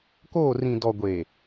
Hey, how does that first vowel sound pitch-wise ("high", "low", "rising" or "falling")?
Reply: falling